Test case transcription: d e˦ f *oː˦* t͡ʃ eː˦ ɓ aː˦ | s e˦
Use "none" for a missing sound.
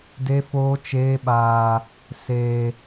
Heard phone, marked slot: oː˦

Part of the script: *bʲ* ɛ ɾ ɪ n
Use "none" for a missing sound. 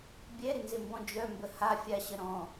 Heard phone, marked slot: bʲ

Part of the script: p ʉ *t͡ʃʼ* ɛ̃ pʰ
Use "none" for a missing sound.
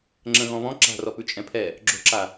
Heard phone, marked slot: t͡ʃʼ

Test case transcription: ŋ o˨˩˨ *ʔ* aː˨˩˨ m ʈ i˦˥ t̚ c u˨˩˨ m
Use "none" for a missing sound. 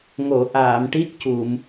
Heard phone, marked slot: ʔ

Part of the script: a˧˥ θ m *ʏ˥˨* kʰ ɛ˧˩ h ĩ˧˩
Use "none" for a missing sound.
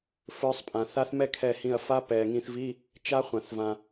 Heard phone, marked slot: ɛ˥˨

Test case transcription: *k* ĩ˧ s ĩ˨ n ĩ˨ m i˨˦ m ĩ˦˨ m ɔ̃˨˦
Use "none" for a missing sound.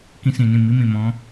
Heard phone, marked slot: k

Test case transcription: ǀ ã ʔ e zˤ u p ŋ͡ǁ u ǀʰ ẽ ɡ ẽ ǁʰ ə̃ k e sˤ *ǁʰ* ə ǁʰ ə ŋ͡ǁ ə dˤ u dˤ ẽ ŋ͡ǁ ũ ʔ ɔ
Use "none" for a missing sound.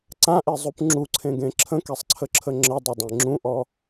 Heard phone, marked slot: ǀʰ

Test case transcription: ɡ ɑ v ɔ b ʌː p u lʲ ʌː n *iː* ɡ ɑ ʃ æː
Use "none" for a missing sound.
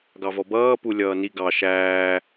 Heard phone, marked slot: i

